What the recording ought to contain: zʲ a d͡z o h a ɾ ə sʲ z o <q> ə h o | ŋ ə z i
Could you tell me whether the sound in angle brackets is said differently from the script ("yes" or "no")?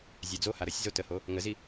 yes